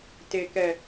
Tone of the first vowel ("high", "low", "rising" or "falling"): low